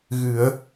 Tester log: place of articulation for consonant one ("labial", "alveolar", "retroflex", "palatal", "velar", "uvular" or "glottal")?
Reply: velar